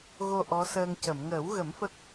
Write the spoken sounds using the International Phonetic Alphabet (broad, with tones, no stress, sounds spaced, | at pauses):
ɣ o˧ ʔ ɔ˧˥ s əː˧ ŋ c ə˨˩˨ m ŋ əː˨˩˦ w ɣ ə˨˩˦ m f ə˦˥ k̚